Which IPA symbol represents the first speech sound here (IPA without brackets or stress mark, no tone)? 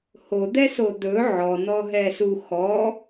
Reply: h